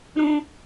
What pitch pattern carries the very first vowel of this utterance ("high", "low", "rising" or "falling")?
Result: high